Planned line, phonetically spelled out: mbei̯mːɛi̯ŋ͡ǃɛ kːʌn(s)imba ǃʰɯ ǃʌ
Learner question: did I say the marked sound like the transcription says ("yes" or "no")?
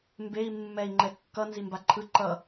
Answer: no